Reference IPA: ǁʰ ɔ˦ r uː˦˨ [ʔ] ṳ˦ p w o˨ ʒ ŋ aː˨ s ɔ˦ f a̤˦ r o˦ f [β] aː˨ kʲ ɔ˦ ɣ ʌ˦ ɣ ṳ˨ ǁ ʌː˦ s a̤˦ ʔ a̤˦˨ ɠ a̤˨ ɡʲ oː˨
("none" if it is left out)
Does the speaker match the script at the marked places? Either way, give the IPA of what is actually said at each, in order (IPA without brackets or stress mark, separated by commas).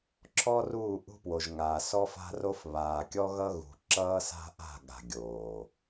ʔ, β